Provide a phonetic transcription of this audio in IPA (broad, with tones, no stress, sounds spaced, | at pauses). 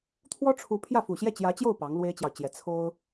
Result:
t̪ʰ w ɔ˥ ʈ͡ʂʰ u˧˥ pʰ j ä˥˩ f u˨˩ ɕ j ɛ˥˩ t͡ɕ j ä˧˥ t͡ɕ j o˥˩ ʊ̯ p ɑ˧˥ ŋ l w e˥ ɪ̯ t͡ɕ j ɑ˨ ʊ̯ t͡ɕ j ɛ˧˥ t͡sʰ o˥ ʊ̯